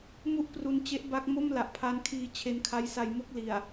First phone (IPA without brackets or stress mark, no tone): m